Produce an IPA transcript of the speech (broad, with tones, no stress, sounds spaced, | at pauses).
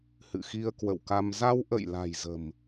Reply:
h ɨ̰˧˨ x i˧ ə̯ k w ə̰˧˨ w k a˧ m z a˧ w ʔ ə̰˧˨ j l a̤˨˩ j z ə̤˨˩ m